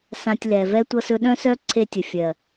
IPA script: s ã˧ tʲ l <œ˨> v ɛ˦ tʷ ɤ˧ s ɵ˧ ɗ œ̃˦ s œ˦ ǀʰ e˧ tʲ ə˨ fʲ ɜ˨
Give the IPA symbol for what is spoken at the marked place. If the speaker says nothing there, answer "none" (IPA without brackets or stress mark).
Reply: ɛ˨